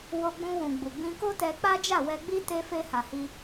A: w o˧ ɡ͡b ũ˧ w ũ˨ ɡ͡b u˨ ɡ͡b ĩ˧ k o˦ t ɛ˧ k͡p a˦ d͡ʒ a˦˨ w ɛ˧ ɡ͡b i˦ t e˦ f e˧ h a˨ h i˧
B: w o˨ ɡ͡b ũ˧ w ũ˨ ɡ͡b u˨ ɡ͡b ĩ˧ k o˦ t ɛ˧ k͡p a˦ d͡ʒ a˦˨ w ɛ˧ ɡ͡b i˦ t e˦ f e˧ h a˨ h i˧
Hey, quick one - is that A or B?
A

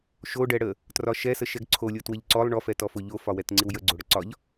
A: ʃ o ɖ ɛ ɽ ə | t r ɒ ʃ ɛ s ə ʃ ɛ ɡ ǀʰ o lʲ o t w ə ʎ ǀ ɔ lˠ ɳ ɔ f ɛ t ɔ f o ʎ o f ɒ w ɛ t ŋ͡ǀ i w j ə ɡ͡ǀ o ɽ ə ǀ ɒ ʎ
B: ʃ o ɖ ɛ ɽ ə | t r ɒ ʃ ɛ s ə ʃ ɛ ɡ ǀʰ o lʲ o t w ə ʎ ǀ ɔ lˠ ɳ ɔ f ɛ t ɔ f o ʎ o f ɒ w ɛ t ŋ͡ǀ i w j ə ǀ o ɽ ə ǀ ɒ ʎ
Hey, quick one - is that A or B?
A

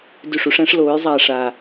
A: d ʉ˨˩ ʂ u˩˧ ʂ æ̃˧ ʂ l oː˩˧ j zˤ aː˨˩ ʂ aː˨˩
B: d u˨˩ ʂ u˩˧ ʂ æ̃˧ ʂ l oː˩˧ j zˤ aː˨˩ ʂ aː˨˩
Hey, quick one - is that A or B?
A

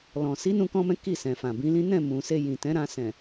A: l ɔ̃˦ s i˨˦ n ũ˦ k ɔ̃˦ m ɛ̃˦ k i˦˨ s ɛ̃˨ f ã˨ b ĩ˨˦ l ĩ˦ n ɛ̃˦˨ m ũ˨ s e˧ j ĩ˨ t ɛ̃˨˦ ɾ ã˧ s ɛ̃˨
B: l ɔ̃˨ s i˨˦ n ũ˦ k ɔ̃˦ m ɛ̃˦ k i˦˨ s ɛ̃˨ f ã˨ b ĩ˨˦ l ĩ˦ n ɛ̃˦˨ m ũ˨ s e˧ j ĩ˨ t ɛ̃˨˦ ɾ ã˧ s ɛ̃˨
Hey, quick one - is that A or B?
B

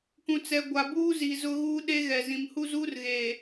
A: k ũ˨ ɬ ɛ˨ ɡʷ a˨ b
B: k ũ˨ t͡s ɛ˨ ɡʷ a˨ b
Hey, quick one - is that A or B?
B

